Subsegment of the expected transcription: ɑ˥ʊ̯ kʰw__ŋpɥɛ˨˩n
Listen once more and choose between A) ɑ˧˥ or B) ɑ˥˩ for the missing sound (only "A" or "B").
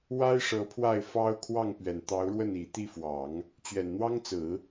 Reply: B